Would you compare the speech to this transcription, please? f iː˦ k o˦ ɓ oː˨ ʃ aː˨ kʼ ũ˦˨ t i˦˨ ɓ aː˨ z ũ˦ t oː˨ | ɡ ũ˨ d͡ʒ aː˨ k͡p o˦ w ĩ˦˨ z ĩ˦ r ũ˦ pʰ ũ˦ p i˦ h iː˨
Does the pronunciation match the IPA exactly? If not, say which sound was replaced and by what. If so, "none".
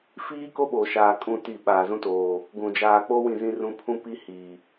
none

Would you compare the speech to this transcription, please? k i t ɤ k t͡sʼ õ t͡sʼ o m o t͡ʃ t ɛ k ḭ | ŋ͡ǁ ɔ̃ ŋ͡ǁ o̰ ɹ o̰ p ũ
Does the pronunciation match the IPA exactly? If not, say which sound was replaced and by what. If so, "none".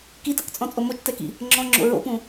õ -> ɔ̃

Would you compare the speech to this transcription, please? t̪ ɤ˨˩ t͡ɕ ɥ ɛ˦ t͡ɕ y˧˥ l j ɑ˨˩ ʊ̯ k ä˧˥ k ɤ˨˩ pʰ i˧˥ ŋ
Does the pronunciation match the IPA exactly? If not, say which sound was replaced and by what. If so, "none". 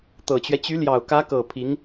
none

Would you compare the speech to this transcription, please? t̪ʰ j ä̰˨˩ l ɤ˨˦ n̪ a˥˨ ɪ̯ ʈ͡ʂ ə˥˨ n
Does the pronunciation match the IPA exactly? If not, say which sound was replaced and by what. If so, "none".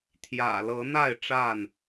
ə˥˨ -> a˥˨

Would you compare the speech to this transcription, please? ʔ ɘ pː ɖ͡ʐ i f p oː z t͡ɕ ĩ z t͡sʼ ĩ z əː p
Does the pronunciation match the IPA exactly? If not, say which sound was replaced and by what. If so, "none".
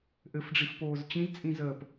pː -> f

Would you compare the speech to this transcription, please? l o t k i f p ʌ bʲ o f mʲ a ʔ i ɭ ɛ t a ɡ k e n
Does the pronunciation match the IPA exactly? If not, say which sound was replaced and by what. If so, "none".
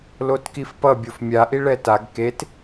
n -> t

